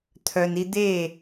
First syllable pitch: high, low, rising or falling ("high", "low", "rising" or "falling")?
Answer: low